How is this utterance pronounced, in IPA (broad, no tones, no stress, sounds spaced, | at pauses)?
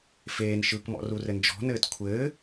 f eː n ʃ ɯː k m ɔ̰ r u r ɘ n d͡ʒ ɔ̤ n ɘː t kʷʰ ɘː